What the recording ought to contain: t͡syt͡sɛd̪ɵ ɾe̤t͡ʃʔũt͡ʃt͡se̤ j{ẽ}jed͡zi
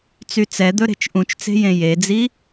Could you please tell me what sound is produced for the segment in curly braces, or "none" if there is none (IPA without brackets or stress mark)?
ẽ